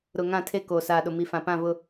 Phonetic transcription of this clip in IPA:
ɾ ʊ˨ ŋ ã˦˨ tʰ e˦ k oː˨ s aː˨ ɗ ʊ˨ m i˨ f ã˨ p ã˦˨ v ʊ˦

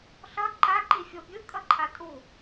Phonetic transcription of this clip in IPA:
ɬ ʌ ǃ a ǃ i fʲ o bʲ ɯ kʼ ʌ ǃʰ a tʼ u

